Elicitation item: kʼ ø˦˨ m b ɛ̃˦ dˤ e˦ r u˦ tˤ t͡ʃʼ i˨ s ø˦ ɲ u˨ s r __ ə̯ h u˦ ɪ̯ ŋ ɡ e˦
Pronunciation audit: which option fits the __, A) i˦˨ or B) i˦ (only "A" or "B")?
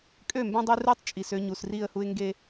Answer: A